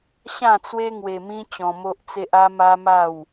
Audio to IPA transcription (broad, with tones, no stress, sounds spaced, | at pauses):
ɕ ã˥˧ t͡s w e˦ ŋ w e˧ m ĩ˦ t͡ɕ ɔ̃˧ m o˦ ʔ t͡s e˦ ʔ a˦ m a˦ m a˥˧ w